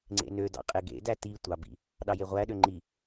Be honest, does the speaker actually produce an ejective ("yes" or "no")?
yes